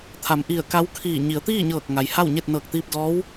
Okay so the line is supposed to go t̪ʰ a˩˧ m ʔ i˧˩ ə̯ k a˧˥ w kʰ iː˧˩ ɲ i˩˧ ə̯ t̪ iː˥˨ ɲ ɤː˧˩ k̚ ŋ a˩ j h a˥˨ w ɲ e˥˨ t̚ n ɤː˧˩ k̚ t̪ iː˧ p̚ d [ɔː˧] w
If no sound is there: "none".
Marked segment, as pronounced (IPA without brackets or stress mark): ɔː˧˥